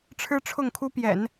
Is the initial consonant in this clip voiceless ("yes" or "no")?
yes